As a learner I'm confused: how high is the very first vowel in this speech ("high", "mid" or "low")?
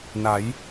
low